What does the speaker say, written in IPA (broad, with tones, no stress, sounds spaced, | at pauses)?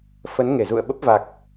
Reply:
f ə˨˦ n ŋ e˧˩ z ṵ˧˨ ə̯ ɓ ə˦˥ p̚ v a˨˩ k̚